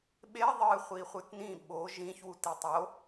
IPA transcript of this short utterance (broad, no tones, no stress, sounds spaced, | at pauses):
ɓ e ðˤ ɨ χʷ i χʷ ɨ t n ĩ ɓ o ʒ ĩ ç w u t i tˤ o